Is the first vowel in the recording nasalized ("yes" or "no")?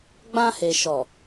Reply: yes